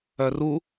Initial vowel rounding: rounded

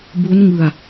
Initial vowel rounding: rounded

